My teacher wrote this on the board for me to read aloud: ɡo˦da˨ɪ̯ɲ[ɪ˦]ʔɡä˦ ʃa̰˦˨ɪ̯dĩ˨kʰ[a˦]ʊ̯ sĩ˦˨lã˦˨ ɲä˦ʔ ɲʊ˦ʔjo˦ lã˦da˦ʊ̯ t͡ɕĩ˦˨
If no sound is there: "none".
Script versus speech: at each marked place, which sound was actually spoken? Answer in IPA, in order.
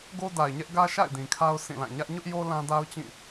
ɛ˦, a˦

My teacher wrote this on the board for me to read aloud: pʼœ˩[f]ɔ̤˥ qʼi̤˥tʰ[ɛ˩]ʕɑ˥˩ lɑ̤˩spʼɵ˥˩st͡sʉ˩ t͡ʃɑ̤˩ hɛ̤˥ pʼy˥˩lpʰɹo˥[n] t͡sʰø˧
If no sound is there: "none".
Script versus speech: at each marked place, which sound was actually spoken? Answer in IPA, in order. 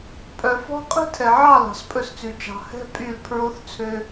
f, ɛ˩, θ

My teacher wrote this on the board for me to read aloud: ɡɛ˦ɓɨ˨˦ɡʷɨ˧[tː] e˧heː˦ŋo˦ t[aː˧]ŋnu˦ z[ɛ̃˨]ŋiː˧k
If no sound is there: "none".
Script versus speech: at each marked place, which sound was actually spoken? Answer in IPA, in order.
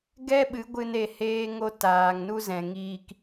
n, aː˧, ɛ̃˨

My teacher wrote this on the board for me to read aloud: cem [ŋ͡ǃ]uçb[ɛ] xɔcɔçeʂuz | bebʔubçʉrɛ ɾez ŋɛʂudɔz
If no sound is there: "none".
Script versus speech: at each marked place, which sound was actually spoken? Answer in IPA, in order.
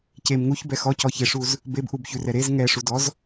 ŋ, ɛ

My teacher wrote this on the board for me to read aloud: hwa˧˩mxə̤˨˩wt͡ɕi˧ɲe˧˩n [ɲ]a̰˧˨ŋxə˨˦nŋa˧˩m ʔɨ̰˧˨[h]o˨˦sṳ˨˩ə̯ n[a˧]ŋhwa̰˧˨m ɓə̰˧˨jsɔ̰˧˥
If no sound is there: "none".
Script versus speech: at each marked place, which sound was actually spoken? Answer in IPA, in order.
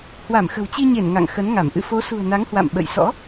ŋ, f, a˨˦

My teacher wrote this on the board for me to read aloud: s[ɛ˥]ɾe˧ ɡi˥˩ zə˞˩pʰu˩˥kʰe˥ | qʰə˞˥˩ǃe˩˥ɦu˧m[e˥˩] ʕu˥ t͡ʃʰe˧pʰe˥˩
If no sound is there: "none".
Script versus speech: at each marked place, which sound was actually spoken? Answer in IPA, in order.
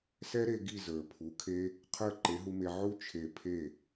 ɛ˥, e˧

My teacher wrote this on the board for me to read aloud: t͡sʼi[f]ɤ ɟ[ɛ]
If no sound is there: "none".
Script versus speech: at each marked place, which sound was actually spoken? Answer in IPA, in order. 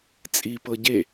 p, e

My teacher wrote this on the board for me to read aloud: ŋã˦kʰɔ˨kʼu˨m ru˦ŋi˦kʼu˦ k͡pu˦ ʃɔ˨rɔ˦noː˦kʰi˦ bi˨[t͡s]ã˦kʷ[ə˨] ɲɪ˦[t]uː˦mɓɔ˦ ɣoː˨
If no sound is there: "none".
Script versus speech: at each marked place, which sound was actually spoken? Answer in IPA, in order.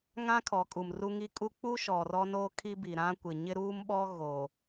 ɾ, ɪ˨, ɾ

